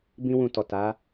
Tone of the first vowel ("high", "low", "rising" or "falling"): high